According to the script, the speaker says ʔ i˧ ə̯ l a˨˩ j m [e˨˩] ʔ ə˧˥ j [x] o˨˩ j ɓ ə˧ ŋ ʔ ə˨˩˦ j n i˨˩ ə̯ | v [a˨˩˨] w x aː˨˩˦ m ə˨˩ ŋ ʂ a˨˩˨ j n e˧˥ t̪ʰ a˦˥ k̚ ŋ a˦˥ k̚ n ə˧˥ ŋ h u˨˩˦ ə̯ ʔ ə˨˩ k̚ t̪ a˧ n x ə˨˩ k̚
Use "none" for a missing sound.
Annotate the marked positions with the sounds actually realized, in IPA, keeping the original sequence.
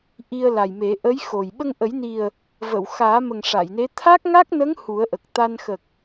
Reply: e˨˩˦, x, ə˨˩˨

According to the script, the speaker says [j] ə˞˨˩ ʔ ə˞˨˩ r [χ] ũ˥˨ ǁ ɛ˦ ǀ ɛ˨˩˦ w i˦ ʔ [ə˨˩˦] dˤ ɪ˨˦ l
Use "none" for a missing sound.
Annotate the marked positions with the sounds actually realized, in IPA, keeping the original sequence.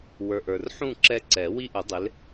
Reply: w, ħ, ʊ˨˩˦

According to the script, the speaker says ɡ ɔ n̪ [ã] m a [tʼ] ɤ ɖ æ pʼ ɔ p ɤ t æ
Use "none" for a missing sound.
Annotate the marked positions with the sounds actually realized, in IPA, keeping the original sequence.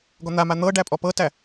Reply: a, n̪

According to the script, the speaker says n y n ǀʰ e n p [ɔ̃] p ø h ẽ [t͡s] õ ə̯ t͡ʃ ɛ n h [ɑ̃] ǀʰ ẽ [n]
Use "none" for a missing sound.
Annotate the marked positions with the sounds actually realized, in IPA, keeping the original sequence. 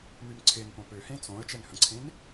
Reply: õ, t͡s, ə̃, n

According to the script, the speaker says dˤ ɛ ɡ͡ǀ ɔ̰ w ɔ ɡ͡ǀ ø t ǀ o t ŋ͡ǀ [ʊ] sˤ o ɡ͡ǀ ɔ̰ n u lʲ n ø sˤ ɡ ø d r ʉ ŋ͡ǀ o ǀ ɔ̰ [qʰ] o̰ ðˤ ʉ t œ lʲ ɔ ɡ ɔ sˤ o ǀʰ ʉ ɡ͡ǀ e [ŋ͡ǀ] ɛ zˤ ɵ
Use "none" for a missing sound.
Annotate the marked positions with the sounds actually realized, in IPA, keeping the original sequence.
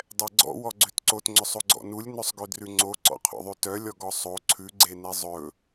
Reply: ɵ, qʰ, n

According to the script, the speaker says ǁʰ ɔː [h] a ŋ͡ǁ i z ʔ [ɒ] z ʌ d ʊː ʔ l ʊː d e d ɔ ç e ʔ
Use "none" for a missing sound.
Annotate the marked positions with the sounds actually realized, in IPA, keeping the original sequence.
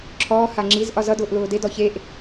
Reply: h, ɒ

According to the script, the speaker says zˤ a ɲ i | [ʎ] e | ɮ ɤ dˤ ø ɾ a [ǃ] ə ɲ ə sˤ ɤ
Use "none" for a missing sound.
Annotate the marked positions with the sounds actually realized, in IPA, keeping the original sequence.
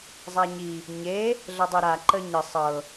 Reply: ɲ, ǃ

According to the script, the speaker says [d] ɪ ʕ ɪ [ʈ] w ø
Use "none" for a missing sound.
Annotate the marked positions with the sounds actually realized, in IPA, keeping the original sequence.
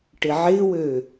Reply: ʈ, none

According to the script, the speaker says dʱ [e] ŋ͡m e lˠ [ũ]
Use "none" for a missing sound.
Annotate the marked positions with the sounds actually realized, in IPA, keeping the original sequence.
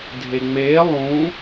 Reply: e, ũ

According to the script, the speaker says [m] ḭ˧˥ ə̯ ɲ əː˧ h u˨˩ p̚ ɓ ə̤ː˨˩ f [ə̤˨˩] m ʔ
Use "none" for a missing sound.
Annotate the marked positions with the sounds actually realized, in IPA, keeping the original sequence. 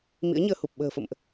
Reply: m, ə̰˧˨

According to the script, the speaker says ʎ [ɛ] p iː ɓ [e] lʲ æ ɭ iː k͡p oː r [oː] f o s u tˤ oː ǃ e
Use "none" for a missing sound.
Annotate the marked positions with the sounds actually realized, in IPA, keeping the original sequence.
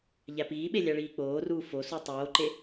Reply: æ, e, uː

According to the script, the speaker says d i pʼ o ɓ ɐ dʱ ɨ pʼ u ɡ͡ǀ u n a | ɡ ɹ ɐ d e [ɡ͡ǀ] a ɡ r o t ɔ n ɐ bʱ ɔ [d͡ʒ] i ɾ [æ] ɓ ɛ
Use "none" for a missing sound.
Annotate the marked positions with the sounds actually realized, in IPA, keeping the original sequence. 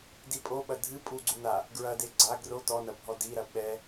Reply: ɡ͡ǀ, d, ɐ

